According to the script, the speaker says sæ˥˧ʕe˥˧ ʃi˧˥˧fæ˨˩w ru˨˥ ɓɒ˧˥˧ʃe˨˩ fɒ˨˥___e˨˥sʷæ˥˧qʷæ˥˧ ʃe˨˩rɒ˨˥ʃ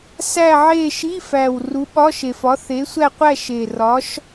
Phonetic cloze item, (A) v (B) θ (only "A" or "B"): B